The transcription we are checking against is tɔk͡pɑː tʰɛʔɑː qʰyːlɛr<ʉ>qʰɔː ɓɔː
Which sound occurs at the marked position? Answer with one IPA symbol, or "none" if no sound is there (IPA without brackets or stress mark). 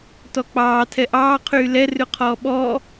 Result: ʉ